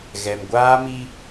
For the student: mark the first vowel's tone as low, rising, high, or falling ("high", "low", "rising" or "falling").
low